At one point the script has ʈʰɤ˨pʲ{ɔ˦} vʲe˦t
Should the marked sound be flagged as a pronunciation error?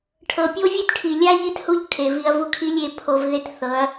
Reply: yes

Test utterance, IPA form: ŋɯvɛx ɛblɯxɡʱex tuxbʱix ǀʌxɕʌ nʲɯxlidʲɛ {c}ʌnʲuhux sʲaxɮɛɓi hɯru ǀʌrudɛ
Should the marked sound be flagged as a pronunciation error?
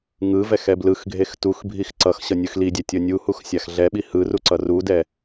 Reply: yes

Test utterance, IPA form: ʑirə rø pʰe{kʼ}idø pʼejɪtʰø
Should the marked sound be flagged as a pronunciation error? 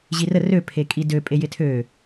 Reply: no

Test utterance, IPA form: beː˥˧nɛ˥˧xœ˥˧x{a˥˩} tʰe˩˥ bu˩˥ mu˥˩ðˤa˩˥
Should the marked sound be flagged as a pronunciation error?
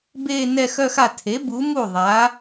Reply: no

